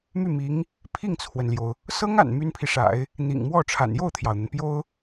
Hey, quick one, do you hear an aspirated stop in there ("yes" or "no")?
yes